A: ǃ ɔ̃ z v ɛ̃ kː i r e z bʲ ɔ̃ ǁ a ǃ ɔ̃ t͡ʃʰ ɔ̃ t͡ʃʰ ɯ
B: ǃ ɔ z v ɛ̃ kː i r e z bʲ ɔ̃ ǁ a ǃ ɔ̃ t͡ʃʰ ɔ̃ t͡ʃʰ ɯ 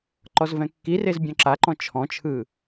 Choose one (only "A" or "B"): B